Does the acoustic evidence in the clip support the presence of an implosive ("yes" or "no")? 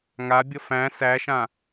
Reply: no